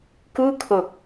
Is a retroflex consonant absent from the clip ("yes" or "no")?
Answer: yes